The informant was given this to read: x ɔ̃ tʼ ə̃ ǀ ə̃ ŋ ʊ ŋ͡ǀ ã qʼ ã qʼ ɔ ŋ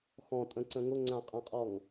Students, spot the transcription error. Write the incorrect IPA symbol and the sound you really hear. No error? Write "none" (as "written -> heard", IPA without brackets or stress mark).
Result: none